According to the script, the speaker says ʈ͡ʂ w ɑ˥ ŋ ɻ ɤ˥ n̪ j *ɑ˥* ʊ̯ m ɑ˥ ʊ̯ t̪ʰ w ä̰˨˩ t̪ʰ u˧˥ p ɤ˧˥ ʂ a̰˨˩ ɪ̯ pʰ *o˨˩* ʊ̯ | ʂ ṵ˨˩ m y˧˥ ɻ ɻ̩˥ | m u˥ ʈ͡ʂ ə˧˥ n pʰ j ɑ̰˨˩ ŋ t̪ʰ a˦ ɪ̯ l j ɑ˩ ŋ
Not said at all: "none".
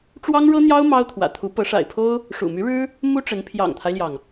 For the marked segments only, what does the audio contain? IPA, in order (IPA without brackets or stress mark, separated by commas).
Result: ɑ˥, o˥